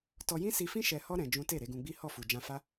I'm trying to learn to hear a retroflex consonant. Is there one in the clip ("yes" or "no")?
no